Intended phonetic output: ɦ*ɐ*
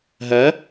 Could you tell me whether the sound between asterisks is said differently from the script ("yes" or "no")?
no